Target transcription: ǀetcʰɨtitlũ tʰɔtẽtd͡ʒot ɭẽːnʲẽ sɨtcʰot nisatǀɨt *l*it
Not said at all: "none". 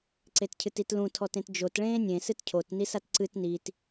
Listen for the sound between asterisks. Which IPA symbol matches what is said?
n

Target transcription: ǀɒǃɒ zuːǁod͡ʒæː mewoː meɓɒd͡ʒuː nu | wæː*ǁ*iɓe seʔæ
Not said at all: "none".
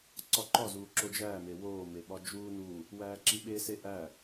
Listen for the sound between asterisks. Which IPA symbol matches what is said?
ǁ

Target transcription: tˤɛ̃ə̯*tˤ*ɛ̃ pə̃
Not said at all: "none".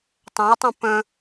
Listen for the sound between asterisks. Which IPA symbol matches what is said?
tˤ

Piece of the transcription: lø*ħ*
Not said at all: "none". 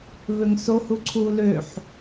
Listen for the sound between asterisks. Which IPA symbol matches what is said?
ħ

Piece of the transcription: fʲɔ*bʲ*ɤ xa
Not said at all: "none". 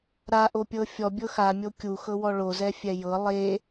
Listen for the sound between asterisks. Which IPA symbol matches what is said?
bʲ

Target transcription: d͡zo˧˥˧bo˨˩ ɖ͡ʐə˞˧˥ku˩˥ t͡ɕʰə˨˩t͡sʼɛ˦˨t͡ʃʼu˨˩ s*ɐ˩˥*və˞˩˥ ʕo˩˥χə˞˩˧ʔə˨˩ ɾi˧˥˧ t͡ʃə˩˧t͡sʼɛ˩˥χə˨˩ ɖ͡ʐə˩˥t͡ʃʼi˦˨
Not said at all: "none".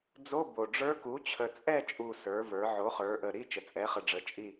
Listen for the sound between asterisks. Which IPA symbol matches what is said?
ə˞˩˥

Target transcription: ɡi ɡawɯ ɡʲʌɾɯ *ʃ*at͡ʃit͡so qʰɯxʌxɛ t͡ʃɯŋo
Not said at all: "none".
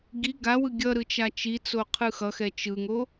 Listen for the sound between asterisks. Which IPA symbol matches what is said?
t͡ʃ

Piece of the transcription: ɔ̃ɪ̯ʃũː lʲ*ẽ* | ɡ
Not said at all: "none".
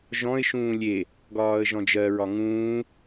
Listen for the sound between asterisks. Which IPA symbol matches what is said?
e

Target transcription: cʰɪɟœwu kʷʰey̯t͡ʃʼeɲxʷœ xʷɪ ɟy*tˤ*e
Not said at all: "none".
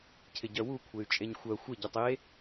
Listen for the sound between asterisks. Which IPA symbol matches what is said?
tˤ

